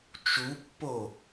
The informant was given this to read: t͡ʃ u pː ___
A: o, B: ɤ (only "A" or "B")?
A